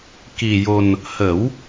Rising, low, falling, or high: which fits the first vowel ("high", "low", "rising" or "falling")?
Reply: low